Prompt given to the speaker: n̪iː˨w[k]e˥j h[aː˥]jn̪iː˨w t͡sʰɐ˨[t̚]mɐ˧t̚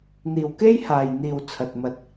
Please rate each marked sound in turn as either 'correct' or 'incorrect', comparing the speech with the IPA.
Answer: correct, incorrect, correct

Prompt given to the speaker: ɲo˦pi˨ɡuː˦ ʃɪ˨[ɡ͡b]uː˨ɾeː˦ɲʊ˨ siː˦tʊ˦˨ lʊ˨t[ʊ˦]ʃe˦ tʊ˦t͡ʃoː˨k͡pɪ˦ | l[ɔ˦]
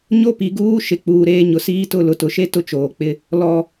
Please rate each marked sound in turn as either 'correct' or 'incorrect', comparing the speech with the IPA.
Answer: incorrect, incorrect, correct

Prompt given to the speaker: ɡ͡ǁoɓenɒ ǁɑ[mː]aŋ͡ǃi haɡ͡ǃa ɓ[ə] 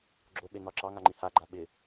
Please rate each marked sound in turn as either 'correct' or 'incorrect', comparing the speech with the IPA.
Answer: incorrect, incorrect

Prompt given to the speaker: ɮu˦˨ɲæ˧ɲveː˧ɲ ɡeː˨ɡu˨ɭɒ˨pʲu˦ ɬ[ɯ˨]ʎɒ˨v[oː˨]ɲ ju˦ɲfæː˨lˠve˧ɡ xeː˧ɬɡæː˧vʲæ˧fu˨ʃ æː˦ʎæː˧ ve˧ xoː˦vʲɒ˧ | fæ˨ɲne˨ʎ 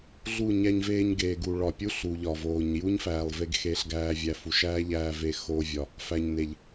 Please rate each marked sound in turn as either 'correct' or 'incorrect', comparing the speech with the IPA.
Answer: incorrect, correct

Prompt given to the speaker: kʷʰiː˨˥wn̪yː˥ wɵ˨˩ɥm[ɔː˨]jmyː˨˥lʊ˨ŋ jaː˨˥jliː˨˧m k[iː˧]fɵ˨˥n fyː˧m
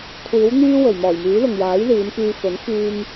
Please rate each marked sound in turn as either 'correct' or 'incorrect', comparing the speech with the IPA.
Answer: incorrect, incorrect

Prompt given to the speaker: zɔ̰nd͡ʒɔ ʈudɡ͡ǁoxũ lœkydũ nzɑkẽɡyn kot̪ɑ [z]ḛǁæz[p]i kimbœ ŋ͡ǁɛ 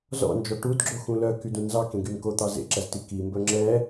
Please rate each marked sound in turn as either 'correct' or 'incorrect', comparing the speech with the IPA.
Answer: correct, incorrect

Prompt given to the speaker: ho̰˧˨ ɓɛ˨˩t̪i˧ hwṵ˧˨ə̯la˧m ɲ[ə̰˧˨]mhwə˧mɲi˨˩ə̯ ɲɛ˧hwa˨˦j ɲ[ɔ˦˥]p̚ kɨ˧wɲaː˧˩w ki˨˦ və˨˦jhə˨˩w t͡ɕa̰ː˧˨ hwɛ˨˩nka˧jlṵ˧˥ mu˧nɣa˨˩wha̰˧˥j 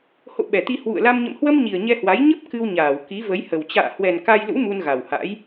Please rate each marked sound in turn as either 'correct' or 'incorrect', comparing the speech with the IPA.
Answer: correct, incorrect

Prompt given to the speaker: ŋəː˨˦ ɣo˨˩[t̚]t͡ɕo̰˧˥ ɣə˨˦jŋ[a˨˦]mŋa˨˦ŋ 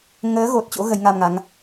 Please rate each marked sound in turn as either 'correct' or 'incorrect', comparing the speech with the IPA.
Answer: correct, incorrect

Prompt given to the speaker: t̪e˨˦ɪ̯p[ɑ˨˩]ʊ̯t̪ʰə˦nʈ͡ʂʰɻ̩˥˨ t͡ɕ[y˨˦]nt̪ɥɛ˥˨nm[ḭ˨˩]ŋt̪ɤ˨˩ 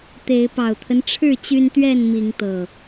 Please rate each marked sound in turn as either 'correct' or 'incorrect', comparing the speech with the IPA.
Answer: correct, incorrect, incorrect

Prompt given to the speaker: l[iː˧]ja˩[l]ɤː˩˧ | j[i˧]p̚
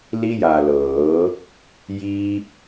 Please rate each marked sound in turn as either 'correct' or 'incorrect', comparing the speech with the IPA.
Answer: incorrect, correct, incorrect

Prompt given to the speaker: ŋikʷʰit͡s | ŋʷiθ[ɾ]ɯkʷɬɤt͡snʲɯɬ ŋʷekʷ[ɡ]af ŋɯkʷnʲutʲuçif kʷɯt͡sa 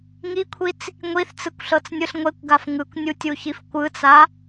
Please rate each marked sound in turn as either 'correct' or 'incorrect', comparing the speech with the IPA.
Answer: incorrect, correct

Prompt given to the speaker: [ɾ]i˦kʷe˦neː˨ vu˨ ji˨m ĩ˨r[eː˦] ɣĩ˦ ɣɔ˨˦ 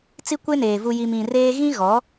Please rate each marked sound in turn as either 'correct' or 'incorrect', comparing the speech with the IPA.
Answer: incorrect, correct

